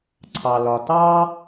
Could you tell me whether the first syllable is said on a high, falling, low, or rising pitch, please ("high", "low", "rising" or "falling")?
low